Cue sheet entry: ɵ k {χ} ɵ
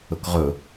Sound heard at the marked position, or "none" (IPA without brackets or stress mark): ʁ